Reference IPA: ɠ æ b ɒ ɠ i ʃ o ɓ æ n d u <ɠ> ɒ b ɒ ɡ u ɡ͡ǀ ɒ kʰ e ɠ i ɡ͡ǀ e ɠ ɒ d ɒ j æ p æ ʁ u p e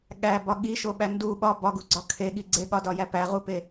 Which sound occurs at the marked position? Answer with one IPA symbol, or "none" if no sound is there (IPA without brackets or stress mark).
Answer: ɓ